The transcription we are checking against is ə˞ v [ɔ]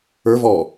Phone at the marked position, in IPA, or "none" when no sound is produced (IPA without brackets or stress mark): ɔ